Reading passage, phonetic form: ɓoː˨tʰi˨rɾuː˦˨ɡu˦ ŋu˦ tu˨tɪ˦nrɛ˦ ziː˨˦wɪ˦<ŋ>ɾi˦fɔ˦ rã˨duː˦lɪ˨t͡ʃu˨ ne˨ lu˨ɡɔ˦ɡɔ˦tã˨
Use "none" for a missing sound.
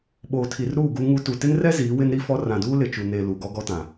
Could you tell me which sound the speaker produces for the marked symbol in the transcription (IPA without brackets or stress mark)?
n